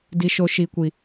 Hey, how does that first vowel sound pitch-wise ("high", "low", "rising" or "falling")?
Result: high